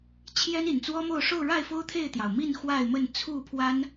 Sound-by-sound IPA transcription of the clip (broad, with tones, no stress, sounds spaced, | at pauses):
t͡ɕʰ j ɛ˦ n i˨˩ n t͡s w ɔ˦ m o˥˨ ʊ̯ ʂ o˥˨ ʊ̯ ɻ a˥˨ ɪ̯ f o˦ ʊ̯ t̪ʰ e˥˨ ɪ̯ t̪ j ɑ˩ ʊ̯ m i˥˨ n x w a˥˨ ɪ̯ m ə˥˨ n t͡sʰ u˥˨ pʰ w a˦ n